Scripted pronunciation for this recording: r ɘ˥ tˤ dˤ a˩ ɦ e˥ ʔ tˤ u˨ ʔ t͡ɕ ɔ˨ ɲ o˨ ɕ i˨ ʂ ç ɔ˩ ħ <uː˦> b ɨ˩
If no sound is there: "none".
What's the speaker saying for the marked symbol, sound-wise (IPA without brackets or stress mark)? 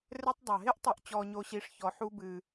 u˦